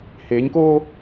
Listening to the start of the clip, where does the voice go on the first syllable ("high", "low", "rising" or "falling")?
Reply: rising